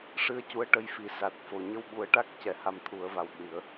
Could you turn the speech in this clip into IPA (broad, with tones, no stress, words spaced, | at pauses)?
ʂɨ˧ə̯cu˧˥ə̯ ʈə˧jfi˨˩ sa˨˩t̚fo˨˩ ɲə˧wɓu˨˩˦ə̯ʈa˦˥k̚ cɛ˨˩˦ha˧mt̪ʰu˨˩˦ə̯va˨˩w ɗi˨˩˦ə̯